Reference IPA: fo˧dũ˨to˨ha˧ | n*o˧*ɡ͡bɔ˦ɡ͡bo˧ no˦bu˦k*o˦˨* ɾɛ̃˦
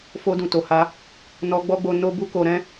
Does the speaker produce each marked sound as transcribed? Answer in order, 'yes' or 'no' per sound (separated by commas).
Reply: no, no